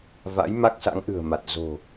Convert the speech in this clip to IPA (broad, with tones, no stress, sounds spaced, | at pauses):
v a̰˧˥ j m a˦˥ k̚ s a̰˧˥ ŋ ʔ ɨ̤˨˩ ə̯ m a˨˩ t̚ z o̤˨˩